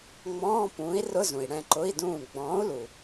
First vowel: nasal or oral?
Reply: nasal